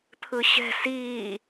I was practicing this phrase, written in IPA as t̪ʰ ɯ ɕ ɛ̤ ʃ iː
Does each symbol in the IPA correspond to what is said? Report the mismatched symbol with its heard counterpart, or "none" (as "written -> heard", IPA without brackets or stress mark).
ʃ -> s